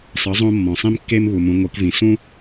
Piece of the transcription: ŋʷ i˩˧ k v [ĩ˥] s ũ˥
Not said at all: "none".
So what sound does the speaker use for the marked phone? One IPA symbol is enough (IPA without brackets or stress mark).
ĩ˩